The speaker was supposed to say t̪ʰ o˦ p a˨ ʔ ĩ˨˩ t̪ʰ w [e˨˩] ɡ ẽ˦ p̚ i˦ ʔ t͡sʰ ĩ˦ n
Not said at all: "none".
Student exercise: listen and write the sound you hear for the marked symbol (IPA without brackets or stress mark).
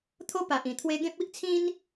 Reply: e˧